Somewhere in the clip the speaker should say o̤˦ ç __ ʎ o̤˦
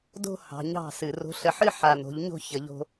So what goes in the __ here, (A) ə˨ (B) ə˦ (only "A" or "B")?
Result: A